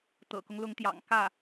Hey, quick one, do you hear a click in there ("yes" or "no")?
no